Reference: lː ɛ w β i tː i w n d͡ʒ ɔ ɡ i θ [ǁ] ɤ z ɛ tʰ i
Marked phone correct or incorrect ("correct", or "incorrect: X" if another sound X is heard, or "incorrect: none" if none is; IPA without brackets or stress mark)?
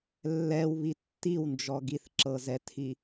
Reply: correct